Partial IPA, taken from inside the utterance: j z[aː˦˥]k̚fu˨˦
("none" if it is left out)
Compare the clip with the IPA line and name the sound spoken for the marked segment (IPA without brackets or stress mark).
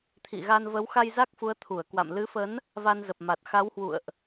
a˦˥